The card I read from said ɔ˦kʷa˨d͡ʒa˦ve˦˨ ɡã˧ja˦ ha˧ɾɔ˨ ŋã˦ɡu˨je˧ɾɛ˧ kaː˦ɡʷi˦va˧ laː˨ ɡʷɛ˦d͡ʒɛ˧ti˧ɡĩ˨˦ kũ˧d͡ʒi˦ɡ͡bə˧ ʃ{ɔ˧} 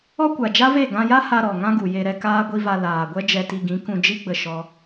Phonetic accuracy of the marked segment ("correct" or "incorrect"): incorrect